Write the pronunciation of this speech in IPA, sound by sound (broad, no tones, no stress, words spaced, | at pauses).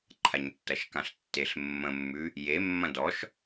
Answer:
ǃʰaɲtːɐʃkãɬtːeɬ mːə̃mːʉ | je mːɐ̃dɔʃ